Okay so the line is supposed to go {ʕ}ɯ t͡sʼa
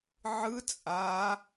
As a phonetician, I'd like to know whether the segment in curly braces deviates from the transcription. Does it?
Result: no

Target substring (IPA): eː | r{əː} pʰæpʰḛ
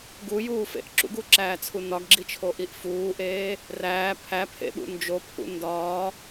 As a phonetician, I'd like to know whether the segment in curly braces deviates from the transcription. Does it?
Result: yes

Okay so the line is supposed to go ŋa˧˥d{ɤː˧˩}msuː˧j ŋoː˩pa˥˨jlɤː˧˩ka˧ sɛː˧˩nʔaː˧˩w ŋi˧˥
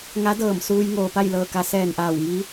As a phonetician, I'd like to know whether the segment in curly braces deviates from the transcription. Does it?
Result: no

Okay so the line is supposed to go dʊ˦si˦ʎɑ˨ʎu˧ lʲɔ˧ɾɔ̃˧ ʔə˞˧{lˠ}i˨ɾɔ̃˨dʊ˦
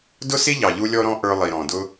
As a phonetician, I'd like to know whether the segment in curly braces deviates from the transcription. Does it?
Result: no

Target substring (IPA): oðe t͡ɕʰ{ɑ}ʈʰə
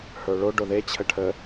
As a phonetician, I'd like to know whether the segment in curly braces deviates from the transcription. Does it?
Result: yes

